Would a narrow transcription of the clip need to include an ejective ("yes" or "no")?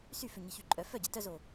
yes